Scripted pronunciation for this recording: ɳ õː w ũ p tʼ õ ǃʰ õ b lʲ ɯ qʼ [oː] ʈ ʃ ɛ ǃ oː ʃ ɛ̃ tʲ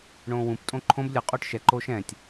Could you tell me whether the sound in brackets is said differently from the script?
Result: no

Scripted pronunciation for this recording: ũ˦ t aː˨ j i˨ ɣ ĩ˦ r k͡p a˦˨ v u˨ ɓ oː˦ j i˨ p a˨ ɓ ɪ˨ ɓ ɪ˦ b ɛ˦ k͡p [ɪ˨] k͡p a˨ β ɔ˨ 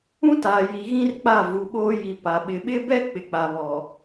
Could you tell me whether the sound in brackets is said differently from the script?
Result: no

